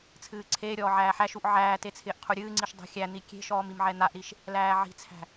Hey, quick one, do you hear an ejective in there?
no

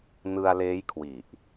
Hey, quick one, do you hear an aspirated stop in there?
yes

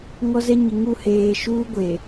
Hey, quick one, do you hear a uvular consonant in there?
no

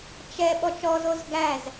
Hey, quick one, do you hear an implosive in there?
yes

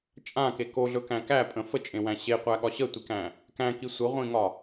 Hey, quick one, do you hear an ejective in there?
yes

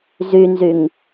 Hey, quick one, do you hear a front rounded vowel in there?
yes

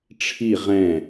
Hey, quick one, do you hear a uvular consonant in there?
yes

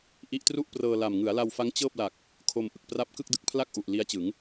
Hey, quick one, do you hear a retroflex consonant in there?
no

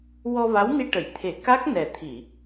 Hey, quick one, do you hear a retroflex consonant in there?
yes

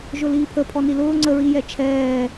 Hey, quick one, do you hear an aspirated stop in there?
yes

